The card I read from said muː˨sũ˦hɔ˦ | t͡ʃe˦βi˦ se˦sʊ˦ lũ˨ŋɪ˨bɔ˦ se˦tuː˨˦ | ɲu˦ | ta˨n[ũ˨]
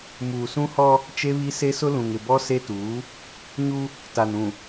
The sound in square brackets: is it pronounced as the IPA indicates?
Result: yes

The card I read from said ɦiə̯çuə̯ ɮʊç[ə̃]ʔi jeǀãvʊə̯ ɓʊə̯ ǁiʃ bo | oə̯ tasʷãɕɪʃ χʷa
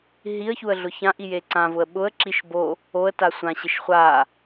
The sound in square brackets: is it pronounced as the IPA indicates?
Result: no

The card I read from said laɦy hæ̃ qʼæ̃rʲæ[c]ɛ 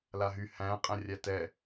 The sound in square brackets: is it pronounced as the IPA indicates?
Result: no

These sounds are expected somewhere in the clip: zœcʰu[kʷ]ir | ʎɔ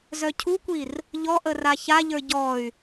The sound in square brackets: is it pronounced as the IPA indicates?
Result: yes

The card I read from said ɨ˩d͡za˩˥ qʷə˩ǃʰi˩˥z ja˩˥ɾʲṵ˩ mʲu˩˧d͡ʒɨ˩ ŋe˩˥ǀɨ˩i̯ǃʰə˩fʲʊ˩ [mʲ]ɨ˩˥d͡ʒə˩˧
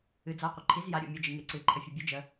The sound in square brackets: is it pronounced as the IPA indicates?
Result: no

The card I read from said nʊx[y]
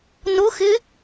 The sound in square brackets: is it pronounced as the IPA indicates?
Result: no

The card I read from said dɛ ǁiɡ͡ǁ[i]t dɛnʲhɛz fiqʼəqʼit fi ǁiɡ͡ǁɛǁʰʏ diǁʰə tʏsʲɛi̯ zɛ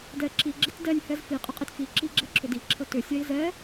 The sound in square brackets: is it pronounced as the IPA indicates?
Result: yes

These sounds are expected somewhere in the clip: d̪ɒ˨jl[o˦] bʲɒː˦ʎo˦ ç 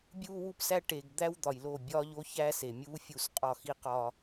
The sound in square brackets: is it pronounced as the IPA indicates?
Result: no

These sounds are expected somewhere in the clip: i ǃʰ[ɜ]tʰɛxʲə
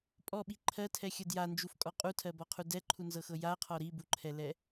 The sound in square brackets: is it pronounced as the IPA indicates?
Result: yes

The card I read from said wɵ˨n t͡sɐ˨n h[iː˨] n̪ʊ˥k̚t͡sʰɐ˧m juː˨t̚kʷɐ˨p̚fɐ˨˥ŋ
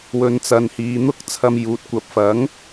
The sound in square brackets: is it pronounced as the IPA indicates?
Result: yes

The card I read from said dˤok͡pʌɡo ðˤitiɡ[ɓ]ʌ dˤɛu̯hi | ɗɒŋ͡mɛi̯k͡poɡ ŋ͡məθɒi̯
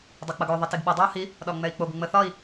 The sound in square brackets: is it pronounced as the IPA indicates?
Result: yes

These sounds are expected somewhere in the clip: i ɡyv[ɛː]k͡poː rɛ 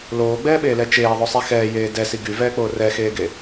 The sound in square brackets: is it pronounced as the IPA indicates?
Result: yes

